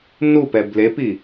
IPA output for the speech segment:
n u p ɛ b l e p i

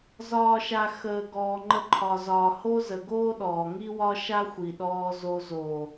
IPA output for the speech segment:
z ɒː˨ ʃ a˨ x əː˨ ɡ ɔː˨ ŋ͡ǃ ə˧ ǃʰ ɒ˨ z ɒː˨ h o˦ z ə˨ ɡ oː˦ ɗ ɔː˨ ŋ i˦ w ɒ˦ ʃ a˦ xʷ i˨ ɗ ɔː˧ z o˧ z oː˨

